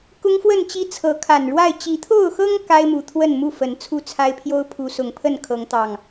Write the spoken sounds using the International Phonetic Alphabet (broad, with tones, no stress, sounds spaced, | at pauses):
k ʊ˦ ŋ f w ə˥˨ n t͡ɕ i˦ t͡sʰ ɤ˨˦ kʰ a˨˩ n ɻ w a˥˨ ɪ̯ t͡ɕ i˨˦ t̪ʰ o˥˨ ʊ̯ x ɤ˦ ŋ k a˦ ɪ̯ m u˨˩ t̪ʰ w ə˥˨ n m u˥˨ f ə˨˦ n t͡sʰ u˥˨ t͡sʰ a˦ ɪ̯ pʰ j o˦ ʊ̯ pʰ u˨˦ s ʊ˨˩ ŋ pʰ ə˥˨ n kʰ ɤ˨˦ ŋ t̪ ɑ˨˩ ŋ